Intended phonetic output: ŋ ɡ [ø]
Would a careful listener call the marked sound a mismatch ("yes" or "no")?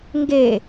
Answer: yes